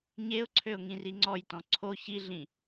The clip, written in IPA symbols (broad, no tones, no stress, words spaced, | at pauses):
ɲeʊ̯ǀʰøʊ̯ ŋĩriŋ͡ǀɔjtɔ̃ ǀʰo çiɮĩ